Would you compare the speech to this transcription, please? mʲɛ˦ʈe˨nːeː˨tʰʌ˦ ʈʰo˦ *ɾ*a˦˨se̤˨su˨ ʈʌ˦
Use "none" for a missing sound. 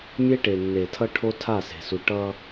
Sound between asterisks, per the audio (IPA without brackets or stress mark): tʰ